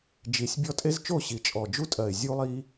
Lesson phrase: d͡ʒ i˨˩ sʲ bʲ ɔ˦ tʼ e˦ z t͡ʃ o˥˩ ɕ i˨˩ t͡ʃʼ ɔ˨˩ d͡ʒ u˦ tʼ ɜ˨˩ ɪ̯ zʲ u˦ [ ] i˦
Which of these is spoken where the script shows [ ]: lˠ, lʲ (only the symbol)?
lˠ